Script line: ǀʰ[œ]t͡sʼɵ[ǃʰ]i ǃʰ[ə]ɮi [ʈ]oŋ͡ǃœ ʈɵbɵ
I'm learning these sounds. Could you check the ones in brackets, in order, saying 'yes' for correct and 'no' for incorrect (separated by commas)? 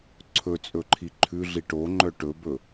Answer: no, yes, no, yes